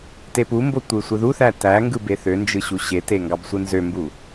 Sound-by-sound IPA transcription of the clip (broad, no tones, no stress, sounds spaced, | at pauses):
t e p u m b o tʷ ɯ sʷ ɯ ð u θ æ t æ ŋ ɡ ɯ b e θ ø n d͡ʒ ɯ ɕ u ɕ e t e ŋ ɡ ɑ b sʷ ɯ n z ø m b u